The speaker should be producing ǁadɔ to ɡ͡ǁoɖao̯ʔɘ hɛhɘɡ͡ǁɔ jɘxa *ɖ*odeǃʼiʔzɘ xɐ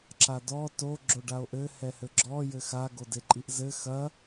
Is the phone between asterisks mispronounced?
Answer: yes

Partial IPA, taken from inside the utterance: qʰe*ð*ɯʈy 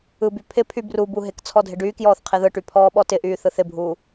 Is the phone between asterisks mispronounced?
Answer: no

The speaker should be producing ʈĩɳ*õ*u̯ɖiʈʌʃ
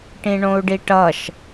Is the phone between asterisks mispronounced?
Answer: no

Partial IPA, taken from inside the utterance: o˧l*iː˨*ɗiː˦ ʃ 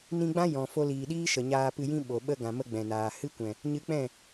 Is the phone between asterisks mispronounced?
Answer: no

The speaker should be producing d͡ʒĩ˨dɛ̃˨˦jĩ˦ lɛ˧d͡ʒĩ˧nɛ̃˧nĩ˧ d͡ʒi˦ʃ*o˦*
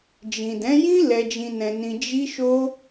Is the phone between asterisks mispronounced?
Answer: no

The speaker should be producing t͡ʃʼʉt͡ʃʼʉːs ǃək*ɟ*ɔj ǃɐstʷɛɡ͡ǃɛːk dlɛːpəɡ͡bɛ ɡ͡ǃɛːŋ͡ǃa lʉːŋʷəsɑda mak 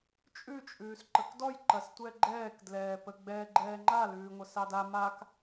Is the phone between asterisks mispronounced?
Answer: yes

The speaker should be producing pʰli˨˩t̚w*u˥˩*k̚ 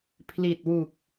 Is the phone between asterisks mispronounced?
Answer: yes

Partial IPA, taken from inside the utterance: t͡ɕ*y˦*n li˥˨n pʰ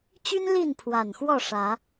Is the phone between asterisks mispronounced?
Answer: no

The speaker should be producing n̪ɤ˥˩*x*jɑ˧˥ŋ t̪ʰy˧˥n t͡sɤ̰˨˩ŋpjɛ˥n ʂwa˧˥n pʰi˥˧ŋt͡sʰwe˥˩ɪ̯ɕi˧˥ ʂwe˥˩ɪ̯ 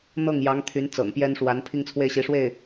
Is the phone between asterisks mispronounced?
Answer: yes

